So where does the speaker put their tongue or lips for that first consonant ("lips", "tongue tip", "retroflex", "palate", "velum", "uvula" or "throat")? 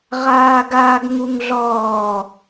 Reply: uvula